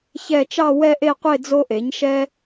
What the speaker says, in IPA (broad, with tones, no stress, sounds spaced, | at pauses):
ç ɛ˥˧ t͡ʃ ɑ˥˧ w ɛ˥˧ ʔ e˥˧ qʷ e˥˧ d͡z o˥ ʔ e˩˥ ɲ ʃ ɛ˥